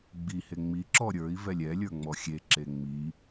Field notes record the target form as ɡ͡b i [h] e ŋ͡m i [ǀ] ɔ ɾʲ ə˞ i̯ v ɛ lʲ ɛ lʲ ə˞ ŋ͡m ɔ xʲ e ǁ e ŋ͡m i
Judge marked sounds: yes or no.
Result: yes, no

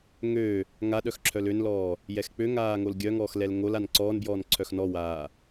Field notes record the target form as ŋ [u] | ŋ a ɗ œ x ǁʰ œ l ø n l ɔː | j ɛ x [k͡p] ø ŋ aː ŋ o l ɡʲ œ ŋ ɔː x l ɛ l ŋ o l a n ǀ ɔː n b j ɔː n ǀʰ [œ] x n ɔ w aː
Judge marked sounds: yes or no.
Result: no, yes, yes

